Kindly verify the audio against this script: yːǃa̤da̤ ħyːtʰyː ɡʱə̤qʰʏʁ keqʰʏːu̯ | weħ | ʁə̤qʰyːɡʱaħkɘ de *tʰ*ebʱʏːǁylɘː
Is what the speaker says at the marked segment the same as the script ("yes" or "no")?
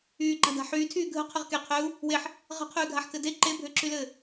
no